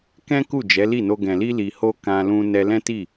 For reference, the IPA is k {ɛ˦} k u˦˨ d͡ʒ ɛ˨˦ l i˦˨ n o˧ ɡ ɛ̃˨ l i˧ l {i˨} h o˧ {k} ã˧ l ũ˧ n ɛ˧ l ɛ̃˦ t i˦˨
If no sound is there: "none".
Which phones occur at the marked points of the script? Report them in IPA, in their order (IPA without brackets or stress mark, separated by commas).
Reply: ɛ̃˦, i˨, k